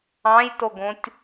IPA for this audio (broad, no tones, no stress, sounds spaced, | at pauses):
ɑ̃ j t o ɡ õ tʲ